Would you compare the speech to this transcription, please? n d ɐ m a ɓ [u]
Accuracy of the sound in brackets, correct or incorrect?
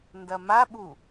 correct